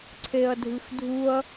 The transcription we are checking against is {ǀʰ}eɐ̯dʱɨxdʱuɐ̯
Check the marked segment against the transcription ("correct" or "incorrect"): correct